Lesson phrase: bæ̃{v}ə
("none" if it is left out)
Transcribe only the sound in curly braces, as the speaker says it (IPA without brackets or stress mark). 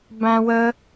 w